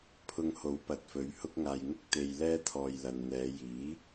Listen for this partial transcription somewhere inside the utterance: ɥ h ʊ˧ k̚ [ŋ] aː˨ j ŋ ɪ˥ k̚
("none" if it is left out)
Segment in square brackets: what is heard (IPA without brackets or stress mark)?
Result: ŋ